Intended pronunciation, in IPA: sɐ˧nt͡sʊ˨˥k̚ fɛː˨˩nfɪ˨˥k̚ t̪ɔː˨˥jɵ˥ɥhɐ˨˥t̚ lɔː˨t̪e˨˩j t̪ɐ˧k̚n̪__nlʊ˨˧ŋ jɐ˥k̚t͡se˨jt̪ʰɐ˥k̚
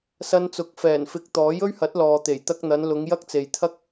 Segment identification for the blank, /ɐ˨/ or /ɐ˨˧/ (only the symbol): ɐ˨˧